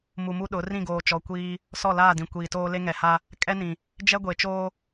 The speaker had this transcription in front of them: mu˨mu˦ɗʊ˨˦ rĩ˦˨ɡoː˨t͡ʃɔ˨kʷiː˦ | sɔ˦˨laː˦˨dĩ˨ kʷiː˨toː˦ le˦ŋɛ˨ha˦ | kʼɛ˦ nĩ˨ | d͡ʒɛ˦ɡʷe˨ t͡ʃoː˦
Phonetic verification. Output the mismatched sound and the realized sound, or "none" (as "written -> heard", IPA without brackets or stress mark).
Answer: none